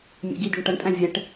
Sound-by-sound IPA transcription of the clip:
mʲ ɛ̰ ɡ i d i ɳ ʈ ʌ ɳ tʼ æ̃ vʲ ɛ ʈ

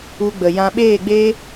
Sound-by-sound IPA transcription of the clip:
u˧ ɡ͡b ə˨ j ã˧ ɓ eː˦˨ ɡ͡b eː˦

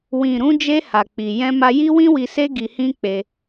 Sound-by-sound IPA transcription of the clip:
w ĩ˨ ɾ ũ˧ d͡ʒ e˧ h a˨ k͡p i˨ j ɛ̃˧ m a˧ j i˦ w ĩ˦ w i˧ s e˦ ɡ i˧ h ĩ˦ k͡p e˧

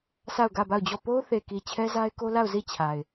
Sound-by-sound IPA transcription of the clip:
s a˦˨ ʊ̯ ɡ ä˦˨ b a˦˨ ʊ̯ d͡ʑ ɔ˦˨ p o˦ ʊ̯ θ e˨ k i˨ t͡ɕʰ ɛ˦ z a˦ ɪ̯ k o˦ l a˦˨ ʊ̯ z i˦˨ t͡ɕʰ a˨ ɪ̯

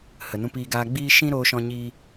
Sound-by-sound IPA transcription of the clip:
h ə˨ n ũ˧ p iː˧ ɡ aː˧ ɡ͡b iː˦ ʃ ĩ˦ ɾ oː˧ ʃ ɔ̃˧ ɲ iː˧

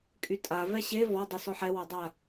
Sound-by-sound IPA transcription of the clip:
kʼ y tʼ a v ɛ ɕ e v ɔ dˤ y s ɔ ħ ɛ w ɔ dˤ a

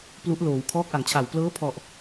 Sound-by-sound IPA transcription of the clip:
p l u˦˥ ʔ l oː˩˦ w kʰ ɔː˦˥ k̚ ʔ a˩˦ ŋ t͡ɕʰ a˨˩ w p l ɤː˦˥ pʰ ɔ˨˩ ʔ

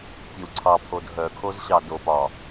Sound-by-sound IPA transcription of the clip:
tʲ e w ǀʰ ɑ pʰ o d ɦ œ kʰ o z ɕ ɑ d o p ɒ

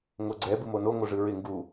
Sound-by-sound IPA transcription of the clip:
ŋ o ɡ͡ǀ ɛ b ɯ m o n o ŋ o ʐ ɯ ɹ ɪ ŋ ɡ u

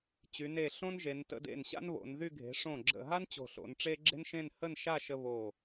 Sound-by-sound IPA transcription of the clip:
t͡ɕ y˩˧ n e˧˩ ɬ õ˥ n ʒ e˩˧ n t ə̰˥˧ d ḛ˧˩ n ɕ a̰˥ n β o̰˩˧ n ð y˥˧ ɡʱ e̤˩˧ ʂ õ˧˩ ɡ͡ǁ ə̰˧˩ ɦ a˥ n t͡ɕ o̤˧˩ ɬ o̰˩˧ n ʈ͡ʂ e˥ ɡ͡ǁ e̤˥ n ʃ ẽ˥˧ n h ə˥˧ n ʃ a˥˧ ʃ ə˧ β o˧˩

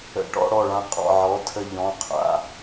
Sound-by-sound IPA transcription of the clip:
ə̰˧˩ ʈ ɔ̰˥˧ ɽ ɔ˧˩ ɭ ã˧ qʼ ɔ̰˧˩ ʕ ɔ˩˧˩ tʰ ə˧˩ ʎ ɔ̃˩˧˩ qʰ a̰˩˧˩

